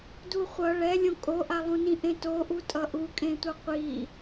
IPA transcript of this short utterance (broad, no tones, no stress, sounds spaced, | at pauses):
d u χʷ ʌ ɭ ɛ lʲ õ kʼ o ʔ a lˠ ũ n ĩ ʔ ẽ t o ʔ u tʼ ʌ ʔ u kʼ ẽ tʷ ʌ qʷ i